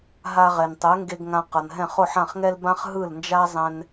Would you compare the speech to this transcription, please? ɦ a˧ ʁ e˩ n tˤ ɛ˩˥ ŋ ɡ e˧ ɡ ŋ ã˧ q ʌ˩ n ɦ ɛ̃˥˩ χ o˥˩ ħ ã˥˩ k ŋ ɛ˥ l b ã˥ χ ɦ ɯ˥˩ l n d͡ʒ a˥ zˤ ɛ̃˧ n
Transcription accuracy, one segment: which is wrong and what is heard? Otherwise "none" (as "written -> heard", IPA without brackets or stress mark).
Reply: k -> χ